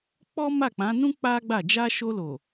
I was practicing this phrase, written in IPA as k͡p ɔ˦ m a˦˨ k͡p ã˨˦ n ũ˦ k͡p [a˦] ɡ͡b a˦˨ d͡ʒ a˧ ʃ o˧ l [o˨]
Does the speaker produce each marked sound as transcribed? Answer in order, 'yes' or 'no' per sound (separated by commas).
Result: yes, yes